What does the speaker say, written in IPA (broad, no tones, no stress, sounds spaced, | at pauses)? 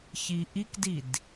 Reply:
ç i ʔ i k d i d